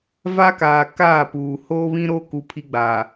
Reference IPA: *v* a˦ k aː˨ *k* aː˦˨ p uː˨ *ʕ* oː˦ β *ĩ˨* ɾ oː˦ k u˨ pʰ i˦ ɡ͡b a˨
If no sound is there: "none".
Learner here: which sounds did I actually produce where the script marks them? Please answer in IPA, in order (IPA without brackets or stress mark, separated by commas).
v, k, h, ĩ˦